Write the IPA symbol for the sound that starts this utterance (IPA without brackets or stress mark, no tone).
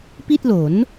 p